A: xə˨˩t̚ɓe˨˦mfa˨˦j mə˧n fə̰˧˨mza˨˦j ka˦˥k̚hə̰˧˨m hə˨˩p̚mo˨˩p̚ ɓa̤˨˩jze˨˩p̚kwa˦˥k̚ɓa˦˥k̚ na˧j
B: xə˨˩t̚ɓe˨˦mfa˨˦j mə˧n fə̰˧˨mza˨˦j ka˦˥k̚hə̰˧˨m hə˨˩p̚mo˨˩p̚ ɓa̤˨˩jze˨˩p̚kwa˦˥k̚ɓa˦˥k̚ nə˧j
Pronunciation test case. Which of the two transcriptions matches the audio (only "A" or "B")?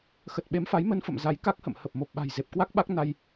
A